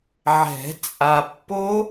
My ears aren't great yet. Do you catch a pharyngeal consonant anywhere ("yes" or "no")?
yes